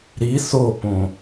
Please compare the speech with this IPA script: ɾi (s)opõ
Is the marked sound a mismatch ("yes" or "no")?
no